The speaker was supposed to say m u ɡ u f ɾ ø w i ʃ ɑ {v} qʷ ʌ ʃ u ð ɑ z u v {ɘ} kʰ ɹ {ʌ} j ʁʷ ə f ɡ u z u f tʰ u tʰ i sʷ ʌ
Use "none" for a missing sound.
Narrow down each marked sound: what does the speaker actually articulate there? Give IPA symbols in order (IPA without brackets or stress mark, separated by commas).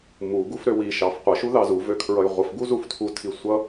f, ø, ʌ